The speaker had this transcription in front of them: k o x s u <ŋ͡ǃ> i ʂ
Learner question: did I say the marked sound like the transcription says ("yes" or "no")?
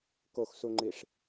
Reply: yes